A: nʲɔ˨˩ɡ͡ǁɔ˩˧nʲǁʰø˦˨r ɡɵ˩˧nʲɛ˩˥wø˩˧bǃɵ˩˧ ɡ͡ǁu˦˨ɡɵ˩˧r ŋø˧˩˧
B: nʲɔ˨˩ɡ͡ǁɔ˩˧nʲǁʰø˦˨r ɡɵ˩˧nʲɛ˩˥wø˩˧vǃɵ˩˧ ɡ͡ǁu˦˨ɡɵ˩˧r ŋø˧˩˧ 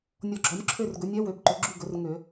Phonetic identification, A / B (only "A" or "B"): A